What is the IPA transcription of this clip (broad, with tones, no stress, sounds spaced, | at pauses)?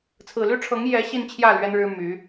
t͡sʰ ɹ̩˨˩ l y˥ ʈ͡ʂʰ ɤ˧˥ ŋ j ɛ˧˥ ɕ i˥˧ n t͡ɕʰ j ä˥˩ l ɥ ɛ˥ n ɻ ɻ̩˥ m y˧˥